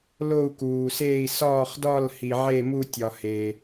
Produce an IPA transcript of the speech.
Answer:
lo˥˧u̯kuː˨seː˥˧i̯ sɒː˥˧χdɒ˥˧l hi˨ʕe˥˧mu˥˧ tʲɒ˨ heː˨

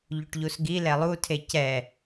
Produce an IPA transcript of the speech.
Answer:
ʎuʈʎusɡi lɛlˠutʰe cɛ

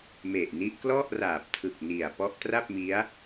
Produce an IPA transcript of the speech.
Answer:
me˨˩ʔni˦˥ʔ klɔ˥˩ʔraː˨˩p̚tʰɯ˨˩k̚ ni˨˩a̯ pɔ˦˥ʔtra˥˩p̚mi˦˥a̯

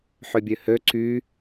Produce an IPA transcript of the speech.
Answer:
ħøbʲøhø ǀy

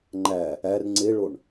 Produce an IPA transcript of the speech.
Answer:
ŋ͡ǃæ | ær ŋ͡ǀeɭoɳ

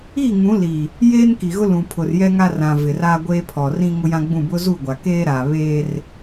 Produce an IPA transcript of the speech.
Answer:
i˦˨ŋũ˨˦li˨ | jeː˦nki˨ɣʊ˦ lũ˨pʰʊ˨rjɛ˦ ŋa˦rã˨ vɪ˨raː˦ ɡʷeː˦pʰɔ˨rĩ˦ ŋʊ˦jã˦ɡ͡bũ˦˨ bʊ˦ zu˦˨ɡʷa˨keː˦ɾaː˨ βeː˦r

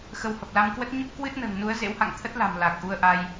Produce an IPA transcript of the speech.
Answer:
xə˨˦whə˨˩p̚la˧mkwə˦˥t̚ ɲə˦˥p̚kwɨ˦˥t̚nə̤ː˨˩ŋnu˨˦ə̯ zḛ˧˥wha̰˧˨ŋt̪ʰə˦˥t̚la̤˨˩m la˨˩k̚ʔu˧ə̯ʔa˧j

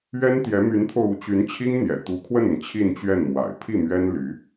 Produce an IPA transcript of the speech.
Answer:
ɥɛ˥nt̪jɛ˧˥my˧˥nt̪ʰo˧ʊ̯ u˧˥t͡ɕy˧˥nt͡ɕʰi˥ŋ n̪jɛ̰˨˩t̪u˧˥kʰwə˥˩nə˩n t͡ɕʰi˥˧nt͡ɕɥɛ˥˩nmwa̰˨˩ɪ̯ pʰi˥˩mɥɛ˥n ly˧˥

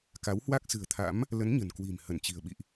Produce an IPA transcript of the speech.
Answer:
ka˨˦whwa˦˥k̚ sɨ̤˨˩ə̯t̪ʰa̰˧˥m | lə˨˦n ɲə̤˨˩nkwi̤˨˩m hə˧˩nt͡ɕi̤˨˩ə̯ ɓḭ˧˨ʔ

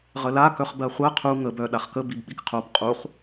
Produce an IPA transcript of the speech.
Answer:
ʁəla kœχbɜχʷɜ qʰu ŋəb œ ɗaχkə bibɓikqʰob qʼuχ

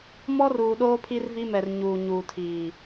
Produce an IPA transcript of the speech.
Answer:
mɔ˦ruː˨ɗoː˦ pʰi˦rvi˦mɛ˨r ɲuː˨ɲuː˨tʰiː˨

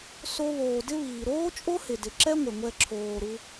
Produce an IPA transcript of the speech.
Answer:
so˦βoː˨ dɪ˦βiː˩ ɾoː˥t͡ʃʼo˥hɪ˩dɪ˩ ǁɛ˦ŋʷɪ˩ŋʷɛ˨ ǁʰoː˩ɾu˨

